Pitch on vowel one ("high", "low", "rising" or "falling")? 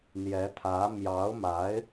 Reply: rising